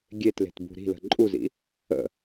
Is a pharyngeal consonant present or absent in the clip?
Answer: absent